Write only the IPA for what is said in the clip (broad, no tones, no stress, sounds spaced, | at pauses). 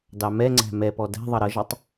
d ɑ m ɛ ŋ͡ǀ æ̤ m ɛ p ɔ d æ̤ ðˤ ʌ ɾ ʌ ʒ ʌ tˤ